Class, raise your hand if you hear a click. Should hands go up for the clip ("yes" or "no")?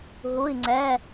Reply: yes